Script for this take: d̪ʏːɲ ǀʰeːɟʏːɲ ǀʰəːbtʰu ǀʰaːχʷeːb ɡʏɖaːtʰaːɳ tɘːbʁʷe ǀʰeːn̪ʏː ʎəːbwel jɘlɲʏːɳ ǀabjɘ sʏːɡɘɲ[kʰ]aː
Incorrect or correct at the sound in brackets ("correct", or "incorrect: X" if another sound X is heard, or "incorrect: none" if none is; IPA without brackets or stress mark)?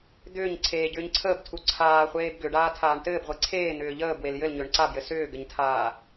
incorrect: tʰ